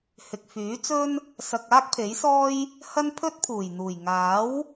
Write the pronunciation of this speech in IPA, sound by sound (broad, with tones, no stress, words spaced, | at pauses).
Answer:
hɪ˨k̚fyː˨˥t͡sɵ˥n | sɐ˧k̚aː˥k̚pʰe˨˥jsɔː˥j | hɐ˥npʰɵ˥t̚pʰuː˨˩jn̪uː˨˩j ŋaː˨˥w